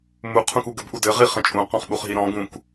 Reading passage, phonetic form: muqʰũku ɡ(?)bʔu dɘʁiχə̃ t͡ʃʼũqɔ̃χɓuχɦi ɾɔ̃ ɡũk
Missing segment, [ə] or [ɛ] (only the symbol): ə